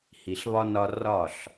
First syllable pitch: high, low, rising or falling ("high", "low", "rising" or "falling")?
low